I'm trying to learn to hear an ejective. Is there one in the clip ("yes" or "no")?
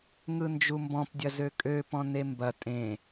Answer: yes